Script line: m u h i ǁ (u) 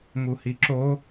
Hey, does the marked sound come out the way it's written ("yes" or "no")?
no